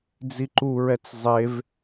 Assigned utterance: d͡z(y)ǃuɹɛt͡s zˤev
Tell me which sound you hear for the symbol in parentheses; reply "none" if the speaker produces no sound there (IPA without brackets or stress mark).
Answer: i